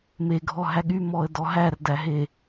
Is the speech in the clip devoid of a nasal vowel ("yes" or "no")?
yes